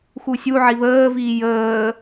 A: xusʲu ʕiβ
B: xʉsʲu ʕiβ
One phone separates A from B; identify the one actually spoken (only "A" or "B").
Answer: A